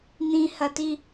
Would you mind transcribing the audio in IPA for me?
n̪ĩhɐti

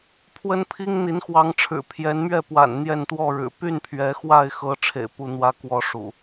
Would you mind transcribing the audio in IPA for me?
pʰwə˦npʰi˦ŋ n̪i˨˦nxwɑ˨˦ŋʈ͡ʂʰɻ̩˨˩ pʰjɛ˨˦nmɥɛ˥˨pwa̰˨˩n n̪jɛ˥˨nt̪wɔ˥˨ɻɻ̩˨˩ py˥˨npʰɥɛ˨˦xwa˥˨ɪ̯xɤ˨˦ ʈ͡ʂʰḛ˨˩ɪ̯ pu˥˨ n̪wä˦kwɔ˨˦ ʂṵ˨˩

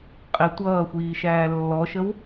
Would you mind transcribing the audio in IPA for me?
qʼɪ tʷʌːxʷiːʃæː lːɔʃəw

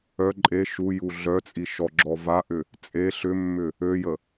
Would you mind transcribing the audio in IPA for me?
œ ǃʼe ʃuju ɮœt͡sʼi ʃɔ ɡ͡ǁɔvaʔʏ | t͡sʼe ɬʏmːʏ | øjə

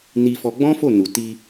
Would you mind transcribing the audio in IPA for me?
ni˧fɔ˧ɡ͡bɔ̃˦fo˦˨ nu˨ti˧

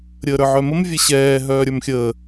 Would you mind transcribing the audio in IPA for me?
ɾʲəːɾə˞ʕœməm vʲɛɕɛː ɦœːɾʲə˞mxʲəː

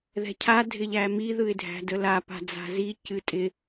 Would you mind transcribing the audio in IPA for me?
ðɛ̤cʰa dʱɪʎæmi ðɯɪ̯dʱæ̤dəla pa̤d͡za̤zi cɨtʼɪ

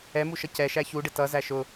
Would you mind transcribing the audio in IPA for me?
ɛmuʃʌ cɛʃæ çuɖɪ tʌzæ ʃʊ

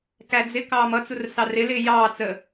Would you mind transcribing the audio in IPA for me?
kæd͡zɪ kɑːmʌt͡sur sɑrɪlɪː jɑːt͡sə

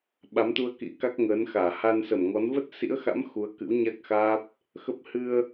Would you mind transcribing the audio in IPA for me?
ɓa˨˦mt̪u˧ə̯kḭ˧˥ka˦˥k̚ ŋəː˨˦nxaː˧˩ ha˧nsə˧˩mŋɔ˨˦n və˦˥t̚sḭ˧˥ə̯xa̰˧˥m xu˨˦ə̯kɨ̰˧˥w ɲa˦˥k̚xaː˦˥p̚ | xə˦˥p̚ hɨ˧ə̯

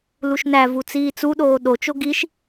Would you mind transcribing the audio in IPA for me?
luʃnævu t͡siːt͡suɗoː ɗot͡ʃo ɡiʃ

